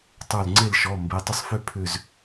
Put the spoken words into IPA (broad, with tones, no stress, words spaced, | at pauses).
tˤə˞˧˩lŋ͡ǀe˥˨lʃɔ˩˧˩ mbe˩˧˩tˤʏ˥˨sˤfʏ˥˨ pʰʏ˧˩z